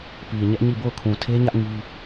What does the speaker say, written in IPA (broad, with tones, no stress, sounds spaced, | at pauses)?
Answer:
p i˨ ɲ ɛ˦ ʔ ɲ i˦˨ b o˦˨ ʊ̯ kʰ ũ˨ tʰ e˦ ɲ ä˦ ʔ ŋ i˦